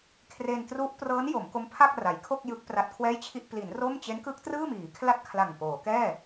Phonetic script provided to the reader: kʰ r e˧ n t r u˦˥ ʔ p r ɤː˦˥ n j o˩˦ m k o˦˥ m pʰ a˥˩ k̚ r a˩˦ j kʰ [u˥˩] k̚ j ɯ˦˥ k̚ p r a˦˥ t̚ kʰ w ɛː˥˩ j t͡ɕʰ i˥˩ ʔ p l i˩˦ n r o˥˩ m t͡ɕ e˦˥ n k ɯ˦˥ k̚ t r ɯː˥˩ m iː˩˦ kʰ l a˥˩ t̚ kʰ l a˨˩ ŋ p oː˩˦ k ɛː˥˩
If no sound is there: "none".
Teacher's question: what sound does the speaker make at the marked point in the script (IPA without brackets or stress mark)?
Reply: o˥˩